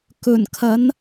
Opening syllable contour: low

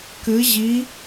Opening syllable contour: rising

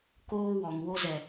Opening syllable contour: high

